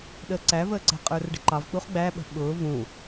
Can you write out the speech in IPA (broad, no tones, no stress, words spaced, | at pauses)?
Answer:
ɗəːǀævəːǀɛ̤ qʼə˞rɖə̤ǃɑvk͡puχ ɡ͡bæɓə̤ ɓʊː vũ